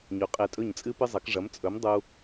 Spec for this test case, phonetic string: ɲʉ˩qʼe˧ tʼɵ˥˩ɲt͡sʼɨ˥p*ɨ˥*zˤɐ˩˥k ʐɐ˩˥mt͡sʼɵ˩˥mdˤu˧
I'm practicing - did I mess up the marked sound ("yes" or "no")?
no